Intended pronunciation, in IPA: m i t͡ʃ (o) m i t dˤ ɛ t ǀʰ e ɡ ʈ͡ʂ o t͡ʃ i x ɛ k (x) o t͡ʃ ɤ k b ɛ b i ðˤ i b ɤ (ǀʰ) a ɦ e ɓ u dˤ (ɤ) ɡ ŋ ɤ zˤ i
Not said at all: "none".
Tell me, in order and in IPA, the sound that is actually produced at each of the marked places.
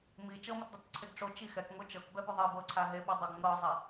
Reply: ɤ, ŋ, ǀʰ, o

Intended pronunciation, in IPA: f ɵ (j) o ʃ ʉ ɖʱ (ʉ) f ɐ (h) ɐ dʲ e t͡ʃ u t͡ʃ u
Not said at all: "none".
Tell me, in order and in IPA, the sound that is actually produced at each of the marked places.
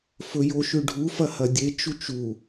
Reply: j, u, h

